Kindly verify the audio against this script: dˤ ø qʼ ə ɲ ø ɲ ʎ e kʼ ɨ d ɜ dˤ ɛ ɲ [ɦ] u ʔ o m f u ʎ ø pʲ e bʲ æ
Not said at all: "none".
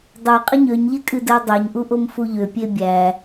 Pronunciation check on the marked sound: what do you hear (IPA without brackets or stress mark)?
ʔ